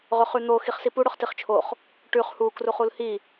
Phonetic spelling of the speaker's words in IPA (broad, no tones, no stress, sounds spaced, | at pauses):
ʁ ɵ χ ʉ n̪ o x i χ s i p u ɽ ɵ χ t i χ t͡ʃʰ o χ | ʈ ʉ χ h u k r u χ u l h i